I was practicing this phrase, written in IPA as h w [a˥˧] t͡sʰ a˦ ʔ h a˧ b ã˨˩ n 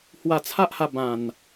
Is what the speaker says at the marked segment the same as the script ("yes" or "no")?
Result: no